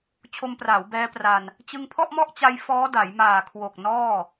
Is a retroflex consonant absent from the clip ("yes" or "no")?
yes